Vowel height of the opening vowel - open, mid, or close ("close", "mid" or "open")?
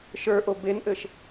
mid